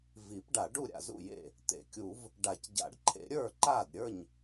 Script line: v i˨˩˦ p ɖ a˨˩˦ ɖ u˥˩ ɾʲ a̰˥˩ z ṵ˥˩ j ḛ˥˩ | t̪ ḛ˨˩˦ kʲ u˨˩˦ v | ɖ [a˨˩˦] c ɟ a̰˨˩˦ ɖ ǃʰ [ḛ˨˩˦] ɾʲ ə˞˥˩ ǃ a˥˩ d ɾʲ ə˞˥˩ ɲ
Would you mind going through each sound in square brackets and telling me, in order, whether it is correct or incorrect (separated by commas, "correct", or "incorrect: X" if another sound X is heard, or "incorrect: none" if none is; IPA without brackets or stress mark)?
correct, correct